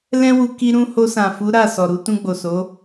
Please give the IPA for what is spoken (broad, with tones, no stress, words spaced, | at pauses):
lɛ̃˦wu˧ ki˧ɾũ˧ ho˧sã˨fu˨˦ ɾa˦˨ sɔ˨ɾu˧ tũ˧ɡ͡bo˨ so˨˦